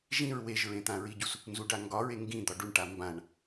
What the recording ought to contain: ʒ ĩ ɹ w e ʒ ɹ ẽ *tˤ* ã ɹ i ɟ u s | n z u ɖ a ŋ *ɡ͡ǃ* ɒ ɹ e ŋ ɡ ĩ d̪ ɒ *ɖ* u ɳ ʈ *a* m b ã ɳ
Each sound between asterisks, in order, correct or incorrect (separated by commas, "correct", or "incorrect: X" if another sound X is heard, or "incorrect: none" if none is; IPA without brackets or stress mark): incorrect: t̪, incorrect: ɡ, correct, correct